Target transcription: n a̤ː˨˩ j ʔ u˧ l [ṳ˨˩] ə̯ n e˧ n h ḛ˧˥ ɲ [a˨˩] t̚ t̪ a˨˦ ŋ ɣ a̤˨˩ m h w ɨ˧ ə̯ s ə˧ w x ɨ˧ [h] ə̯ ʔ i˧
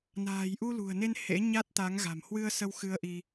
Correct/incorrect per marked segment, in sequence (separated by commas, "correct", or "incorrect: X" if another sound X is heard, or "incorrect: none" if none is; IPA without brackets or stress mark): correct, incorrect: a˦˥, incorrect: none